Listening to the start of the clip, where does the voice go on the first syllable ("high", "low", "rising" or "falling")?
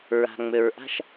low